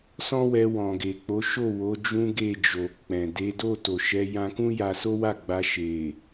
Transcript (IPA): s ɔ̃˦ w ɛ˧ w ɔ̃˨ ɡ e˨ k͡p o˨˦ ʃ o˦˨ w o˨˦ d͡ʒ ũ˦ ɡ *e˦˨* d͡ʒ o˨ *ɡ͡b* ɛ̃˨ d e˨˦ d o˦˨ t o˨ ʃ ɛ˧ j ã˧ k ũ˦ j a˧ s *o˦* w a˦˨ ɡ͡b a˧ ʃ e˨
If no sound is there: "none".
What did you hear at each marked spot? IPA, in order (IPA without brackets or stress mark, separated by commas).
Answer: e˦˨, k͡p, o˦